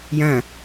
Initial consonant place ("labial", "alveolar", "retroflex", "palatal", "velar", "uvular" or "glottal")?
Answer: palatal